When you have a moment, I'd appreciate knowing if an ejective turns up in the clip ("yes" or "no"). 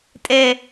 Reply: yes